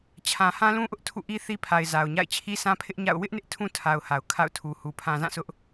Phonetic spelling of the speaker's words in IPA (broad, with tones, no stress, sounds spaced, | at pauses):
t͡ɕʰ ã˨ h ã˦ l ũ˦ ʔ ʊ˦ ʔ tʰ ṵ˦˨ ʔ i˦ θ i˦ pʰ a˨ ɪ̯ z a˨ ʊ̯ ɲ a̰˦˨ ɪ̯ t͡ɕʰ i˦ s ã˦ pʰ ɪ˦ ʔ ɲ a̰˦˨ ʊ̯ w ɪ˦ ʔ n ɪ˦ ʔ tʰ ũ˦ tʰ a˨ ʊ̯ h a˨ ʊ̯ kʰ a̰˦˨ ʊ̯ tʰ u˨ h u˨ pʰ ã˨ z ã˦˨ sʰ ʊ˦ ʔ